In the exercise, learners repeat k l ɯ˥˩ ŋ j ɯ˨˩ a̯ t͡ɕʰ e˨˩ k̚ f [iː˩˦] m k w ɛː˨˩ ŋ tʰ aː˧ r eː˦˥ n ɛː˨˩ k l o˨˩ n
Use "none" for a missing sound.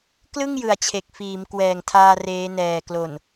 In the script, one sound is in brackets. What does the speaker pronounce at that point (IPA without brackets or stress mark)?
iː˩˦